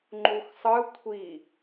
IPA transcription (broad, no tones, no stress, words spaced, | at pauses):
ŋ͡ǃuxsˤɯ kʷʰi